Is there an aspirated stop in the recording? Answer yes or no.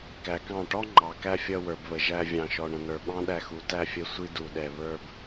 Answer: no